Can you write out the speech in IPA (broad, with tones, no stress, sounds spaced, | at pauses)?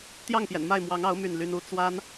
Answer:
t̪ j ɑ˥˩ ŋ p j ɛ̰˨˩ n m a˥˩ ɪ̯ m w ɑ˧˥ ŋ ɑ˧˥ ʊ̯ m y˥˩ n l y˥ n u˧˥ t͡s w a˥ n